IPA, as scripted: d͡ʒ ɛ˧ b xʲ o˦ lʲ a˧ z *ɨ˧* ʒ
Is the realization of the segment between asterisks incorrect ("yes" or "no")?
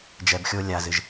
no